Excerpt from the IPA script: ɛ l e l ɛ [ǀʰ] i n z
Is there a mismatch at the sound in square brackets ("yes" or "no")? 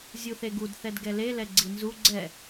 yes